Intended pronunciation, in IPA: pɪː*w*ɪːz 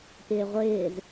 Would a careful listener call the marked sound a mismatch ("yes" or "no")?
yes